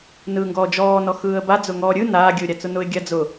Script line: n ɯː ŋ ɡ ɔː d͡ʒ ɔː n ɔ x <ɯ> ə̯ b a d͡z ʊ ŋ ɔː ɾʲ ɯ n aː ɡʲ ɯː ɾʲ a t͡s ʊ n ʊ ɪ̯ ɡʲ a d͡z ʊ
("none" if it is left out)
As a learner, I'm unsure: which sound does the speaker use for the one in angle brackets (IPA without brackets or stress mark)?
ɯː